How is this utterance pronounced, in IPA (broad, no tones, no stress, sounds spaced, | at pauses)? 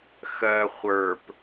x ɜ χʷ ə˞ p